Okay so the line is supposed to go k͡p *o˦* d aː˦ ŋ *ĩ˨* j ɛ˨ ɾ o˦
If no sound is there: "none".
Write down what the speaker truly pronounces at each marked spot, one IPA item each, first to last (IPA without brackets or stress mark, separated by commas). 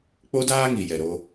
o˦, i˨